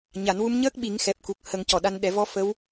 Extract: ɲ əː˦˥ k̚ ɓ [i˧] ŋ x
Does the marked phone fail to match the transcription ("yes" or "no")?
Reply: yes